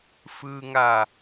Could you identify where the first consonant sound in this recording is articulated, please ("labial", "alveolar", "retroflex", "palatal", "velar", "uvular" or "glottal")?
labial